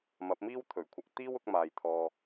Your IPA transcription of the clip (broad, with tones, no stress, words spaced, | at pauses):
mɐ˨˥p̚miː˥wt̪ʰɵ˨˩ɥkʷʰɐ˧k̚ t̪iː˥wʊ˨˥k̚maː˨j t̪ʰɔː˧